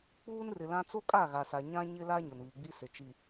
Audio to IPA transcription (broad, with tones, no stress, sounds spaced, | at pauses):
k͡p uː˦ n r ɪ˨ l ã˦ t͡s o˦ kʼ a˦˨ ɣ a˨ s a˨ ɲ ã˦ ɲ ɪ˦ l a˦ ɲ ʊ˨ n β i˨ ɡ͡b i˦ s ɪ˨ t͡ʃ i˨